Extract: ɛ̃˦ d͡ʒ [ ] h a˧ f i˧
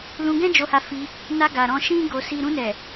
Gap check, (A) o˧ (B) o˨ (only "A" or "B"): A